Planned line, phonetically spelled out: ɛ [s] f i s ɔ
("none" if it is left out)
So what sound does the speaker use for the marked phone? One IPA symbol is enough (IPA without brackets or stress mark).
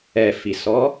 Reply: none